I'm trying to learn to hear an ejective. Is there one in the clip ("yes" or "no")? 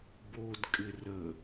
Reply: yes